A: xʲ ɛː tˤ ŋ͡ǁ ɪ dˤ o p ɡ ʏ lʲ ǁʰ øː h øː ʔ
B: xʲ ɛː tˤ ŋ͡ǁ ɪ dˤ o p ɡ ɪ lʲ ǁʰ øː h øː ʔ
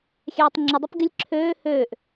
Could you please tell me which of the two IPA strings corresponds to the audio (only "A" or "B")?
B